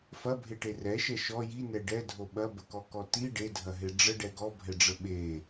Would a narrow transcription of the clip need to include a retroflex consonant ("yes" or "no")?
yes